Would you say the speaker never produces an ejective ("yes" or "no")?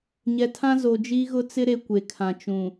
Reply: yes